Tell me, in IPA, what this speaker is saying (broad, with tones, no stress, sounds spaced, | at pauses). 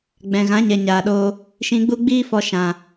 ɡ͡b ɛ̃˨ ɣ ã˨˦ ɲ ɛ˨ ɲ aː˨ ɗ oː˧ | ʃ ĩ˨ ɡ͡b u˧ ɡ͡b iː˧ f ɔ˨ ʃ ã˨